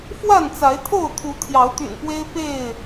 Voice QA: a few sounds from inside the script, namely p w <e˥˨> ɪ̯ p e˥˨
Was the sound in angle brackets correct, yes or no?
no